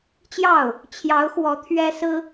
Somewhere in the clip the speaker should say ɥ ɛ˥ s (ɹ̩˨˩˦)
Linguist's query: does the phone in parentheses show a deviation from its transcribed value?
yes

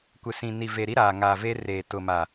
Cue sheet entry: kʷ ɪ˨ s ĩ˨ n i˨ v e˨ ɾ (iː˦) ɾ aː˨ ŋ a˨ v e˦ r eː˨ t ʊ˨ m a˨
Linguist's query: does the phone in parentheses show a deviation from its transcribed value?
yes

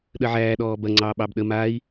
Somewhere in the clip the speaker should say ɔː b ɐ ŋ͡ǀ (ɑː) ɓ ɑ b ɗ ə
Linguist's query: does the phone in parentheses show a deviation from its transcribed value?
no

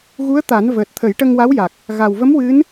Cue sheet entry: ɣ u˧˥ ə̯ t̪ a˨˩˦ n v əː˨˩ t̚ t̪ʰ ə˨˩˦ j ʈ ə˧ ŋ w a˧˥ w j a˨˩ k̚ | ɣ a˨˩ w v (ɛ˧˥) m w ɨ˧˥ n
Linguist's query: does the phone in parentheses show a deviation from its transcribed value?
yes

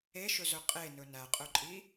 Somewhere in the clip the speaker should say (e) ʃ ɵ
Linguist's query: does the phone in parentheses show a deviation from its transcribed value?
no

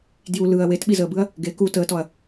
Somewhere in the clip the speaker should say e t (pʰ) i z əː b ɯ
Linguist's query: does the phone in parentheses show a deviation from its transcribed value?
yes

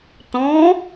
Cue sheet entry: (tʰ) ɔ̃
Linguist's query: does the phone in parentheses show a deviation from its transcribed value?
yes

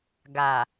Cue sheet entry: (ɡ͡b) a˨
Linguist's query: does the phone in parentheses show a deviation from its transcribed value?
yes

